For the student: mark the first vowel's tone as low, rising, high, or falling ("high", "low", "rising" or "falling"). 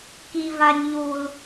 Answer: high